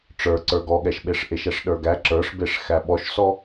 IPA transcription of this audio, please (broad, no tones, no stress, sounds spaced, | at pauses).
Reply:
ʈ͡ʂ ə˞ ǀ ə˞ ɡ ɔ ɠ ɛ ʃ ɓ e ʂ ʔ e ʃ ɛ ʂ ɗ ə˞ ɡ æ ǁ ə˞ ʂ b e ʂ x æ ɓ ɔ ʃ s ɔ